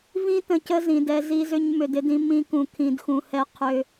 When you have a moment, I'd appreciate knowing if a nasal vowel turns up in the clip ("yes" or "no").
yes